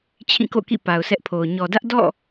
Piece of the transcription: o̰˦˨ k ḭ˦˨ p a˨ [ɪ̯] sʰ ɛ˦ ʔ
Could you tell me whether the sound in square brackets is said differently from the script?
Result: yes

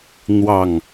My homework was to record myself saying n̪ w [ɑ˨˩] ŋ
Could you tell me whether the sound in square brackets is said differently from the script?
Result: no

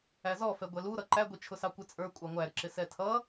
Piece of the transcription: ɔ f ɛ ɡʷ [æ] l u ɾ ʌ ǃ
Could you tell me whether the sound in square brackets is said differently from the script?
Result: yes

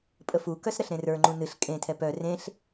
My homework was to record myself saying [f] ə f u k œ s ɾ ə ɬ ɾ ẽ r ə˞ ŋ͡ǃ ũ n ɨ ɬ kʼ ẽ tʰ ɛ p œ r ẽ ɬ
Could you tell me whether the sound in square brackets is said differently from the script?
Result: yes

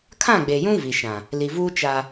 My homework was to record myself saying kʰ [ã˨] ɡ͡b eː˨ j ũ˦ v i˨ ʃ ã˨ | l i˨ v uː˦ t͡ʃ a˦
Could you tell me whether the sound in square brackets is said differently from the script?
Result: yes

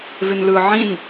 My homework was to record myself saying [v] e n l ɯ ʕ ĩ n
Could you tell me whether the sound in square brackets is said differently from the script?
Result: no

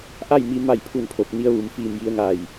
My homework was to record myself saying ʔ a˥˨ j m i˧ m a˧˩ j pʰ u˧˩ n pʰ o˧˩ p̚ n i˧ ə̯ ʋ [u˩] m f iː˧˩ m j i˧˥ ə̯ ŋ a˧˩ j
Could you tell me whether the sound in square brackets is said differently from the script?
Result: no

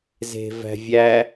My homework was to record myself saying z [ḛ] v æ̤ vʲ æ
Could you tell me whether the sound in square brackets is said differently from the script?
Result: yes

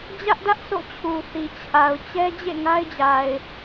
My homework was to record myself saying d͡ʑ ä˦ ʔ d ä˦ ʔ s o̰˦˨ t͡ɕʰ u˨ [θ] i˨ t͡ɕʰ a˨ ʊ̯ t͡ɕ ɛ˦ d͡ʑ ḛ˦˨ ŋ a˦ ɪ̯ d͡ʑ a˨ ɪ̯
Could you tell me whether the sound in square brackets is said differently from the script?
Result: no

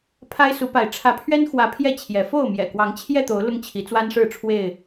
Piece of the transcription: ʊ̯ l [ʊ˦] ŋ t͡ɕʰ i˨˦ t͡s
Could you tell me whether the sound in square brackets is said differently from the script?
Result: no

